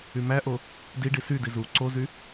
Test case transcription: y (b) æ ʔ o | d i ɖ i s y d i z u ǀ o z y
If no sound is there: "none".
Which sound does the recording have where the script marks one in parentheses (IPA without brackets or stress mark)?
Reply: m